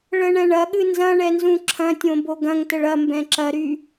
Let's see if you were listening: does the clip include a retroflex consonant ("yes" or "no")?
yes